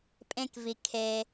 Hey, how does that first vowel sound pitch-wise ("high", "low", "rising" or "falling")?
high